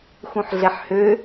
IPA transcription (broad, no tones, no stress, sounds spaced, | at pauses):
x ũ ħ ɮ ɛ ħ h ø